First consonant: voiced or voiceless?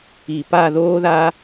voiceless